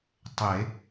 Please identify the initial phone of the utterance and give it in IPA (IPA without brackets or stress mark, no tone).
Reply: tˤ